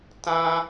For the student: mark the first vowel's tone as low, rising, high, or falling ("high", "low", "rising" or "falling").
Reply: high